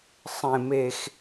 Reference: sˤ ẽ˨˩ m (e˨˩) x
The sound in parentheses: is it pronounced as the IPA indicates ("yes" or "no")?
yes